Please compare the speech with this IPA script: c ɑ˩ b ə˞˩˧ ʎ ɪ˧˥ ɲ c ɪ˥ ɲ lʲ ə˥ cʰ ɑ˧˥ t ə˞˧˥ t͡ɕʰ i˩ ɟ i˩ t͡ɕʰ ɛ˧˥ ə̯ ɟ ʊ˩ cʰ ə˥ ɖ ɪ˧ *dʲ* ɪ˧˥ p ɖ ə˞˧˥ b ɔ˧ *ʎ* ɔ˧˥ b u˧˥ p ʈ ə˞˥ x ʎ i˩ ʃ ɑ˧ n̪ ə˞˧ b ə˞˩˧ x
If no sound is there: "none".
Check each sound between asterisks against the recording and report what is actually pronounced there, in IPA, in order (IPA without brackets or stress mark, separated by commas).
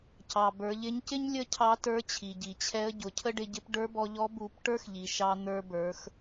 ɟ, ʎ